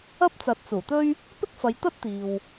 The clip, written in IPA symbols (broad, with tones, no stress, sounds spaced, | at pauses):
ɐ˥ p̚ t͡s ɐ˨˥ t̚ t͡s uː˨˩ t̪ ɵ˥ ɥ | p ɪ˥ k̚ f ɐ˨˧ j t̪ ɐ˥ t̚ t̪ iː˨ w